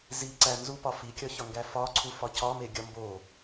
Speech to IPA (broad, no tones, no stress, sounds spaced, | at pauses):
z i ǀ æ n z u p ɒ f i kʲ ɒ ç ɒ ŋ ɡ æ f ɒ ǀʰ u f ɒ c ɒ m e ɡʲ ɒ m b o